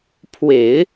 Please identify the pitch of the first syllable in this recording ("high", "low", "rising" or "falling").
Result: low